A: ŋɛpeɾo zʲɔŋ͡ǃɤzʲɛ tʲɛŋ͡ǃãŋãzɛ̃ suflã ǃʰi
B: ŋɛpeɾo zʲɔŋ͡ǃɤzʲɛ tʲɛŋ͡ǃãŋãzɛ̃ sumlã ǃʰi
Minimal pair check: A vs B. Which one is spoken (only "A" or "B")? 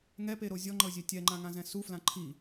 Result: A